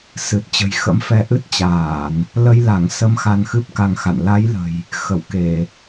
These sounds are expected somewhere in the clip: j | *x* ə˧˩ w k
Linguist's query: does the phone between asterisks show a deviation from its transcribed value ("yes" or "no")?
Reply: no